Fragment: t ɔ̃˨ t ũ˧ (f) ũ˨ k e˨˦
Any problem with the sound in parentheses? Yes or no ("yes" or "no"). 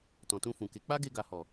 no